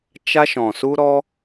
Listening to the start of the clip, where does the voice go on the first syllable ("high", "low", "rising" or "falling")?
high